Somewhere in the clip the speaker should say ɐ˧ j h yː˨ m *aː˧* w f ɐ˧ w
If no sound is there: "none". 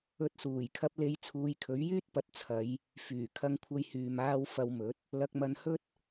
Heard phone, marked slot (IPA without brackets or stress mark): aː˧